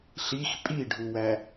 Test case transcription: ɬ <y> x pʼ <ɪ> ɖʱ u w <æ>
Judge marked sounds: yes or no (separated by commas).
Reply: no, no, yes